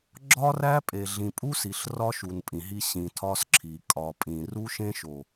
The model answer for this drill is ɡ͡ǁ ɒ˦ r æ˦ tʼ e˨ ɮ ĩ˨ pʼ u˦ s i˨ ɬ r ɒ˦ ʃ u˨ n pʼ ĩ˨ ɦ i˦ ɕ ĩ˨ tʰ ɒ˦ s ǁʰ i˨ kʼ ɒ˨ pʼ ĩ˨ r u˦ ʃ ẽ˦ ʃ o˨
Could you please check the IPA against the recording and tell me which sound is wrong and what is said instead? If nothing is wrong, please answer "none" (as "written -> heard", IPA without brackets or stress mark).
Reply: tʼ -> pʼ